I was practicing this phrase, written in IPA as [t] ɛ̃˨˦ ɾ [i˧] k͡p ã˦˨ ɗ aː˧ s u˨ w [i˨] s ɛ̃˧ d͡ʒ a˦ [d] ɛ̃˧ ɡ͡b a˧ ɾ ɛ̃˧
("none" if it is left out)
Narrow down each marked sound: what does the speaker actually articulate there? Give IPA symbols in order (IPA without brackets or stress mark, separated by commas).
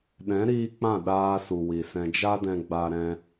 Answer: ɗ, iː˧, i˨, d